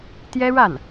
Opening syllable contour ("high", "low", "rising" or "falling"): high